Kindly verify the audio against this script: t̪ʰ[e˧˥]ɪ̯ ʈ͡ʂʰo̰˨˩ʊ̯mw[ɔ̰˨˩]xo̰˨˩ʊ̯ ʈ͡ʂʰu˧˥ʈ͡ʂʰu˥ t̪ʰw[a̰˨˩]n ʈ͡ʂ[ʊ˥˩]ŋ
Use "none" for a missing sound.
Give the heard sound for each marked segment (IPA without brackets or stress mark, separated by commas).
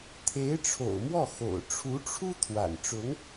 e˧˥, ɔ˥˩, a̰˨˩, ʊ˧˥